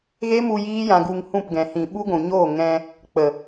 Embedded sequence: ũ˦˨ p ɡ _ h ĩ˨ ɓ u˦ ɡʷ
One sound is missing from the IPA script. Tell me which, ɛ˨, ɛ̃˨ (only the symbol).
ɛ̃˨